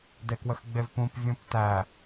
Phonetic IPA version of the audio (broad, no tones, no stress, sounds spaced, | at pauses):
d e k w ə x ɡ͡b e v p ũ p vʲ ũ p t æ